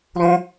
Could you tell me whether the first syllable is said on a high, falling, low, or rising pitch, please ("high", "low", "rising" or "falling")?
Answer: high